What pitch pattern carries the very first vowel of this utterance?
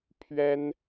high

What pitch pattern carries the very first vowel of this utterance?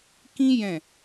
high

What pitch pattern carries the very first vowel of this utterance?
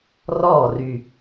falling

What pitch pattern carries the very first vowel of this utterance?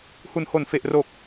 low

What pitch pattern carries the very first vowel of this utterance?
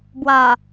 low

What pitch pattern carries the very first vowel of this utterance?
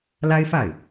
high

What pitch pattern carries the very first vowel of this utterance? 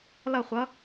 falling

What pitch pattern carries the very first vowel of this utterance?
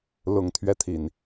low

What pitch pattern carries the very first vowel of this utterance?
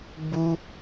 high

